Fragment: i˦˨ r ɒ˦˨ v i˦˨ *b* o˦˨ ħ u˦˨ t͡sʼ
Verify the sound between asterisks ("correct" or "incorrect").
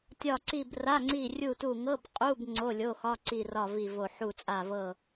incorrect